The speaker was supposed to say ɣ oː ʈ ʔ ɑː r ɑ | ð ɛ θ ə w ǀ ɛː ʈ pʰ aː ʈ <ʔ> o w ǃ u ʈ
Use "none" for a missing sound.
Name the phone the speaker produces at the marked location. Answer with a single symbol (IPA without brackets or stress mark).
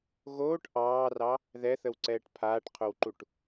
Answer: qʰ